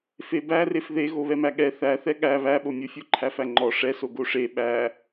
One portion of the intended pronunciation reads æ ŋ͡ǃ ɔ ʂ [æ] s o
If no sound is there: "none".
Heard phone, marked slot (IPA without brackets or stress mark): ɛ